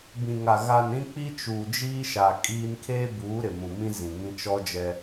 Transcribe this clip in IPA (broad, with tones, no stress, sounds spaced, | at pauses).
b ĩ˨ ŋ a˨ ɣ a˨ n ɾ ĩ˦ k͡p i˦ t͡ʃ uː˨ d͡ʒ iː˦ ʃ a˨ kʼ iː˦ n kʰ eː˦ b uː˨˦ ɾ ɪ˨ m ũ˨ m ĩ˦ z ĩ˨ ŋ ĩ˦ t͡ʃ ɔ˦ d͡ʒ ɛ˦